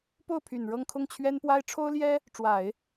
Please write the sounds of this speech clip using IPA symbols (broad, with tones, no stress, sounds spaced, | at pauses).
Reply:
p o˥˩ ʊ̯ pʰ y˨˩ n ɻ ɤ˥˧ ŋ kʰ ʊ˥˩ ŋ t͡ɕʰ ɥ ɛ˥ n p w a˥ ɪ̯ ʈ͡ʂʰ o˥ ʊ̯ l j ɛ˥ | ʈ͡ʂ w a˨˩˦ ɪ̯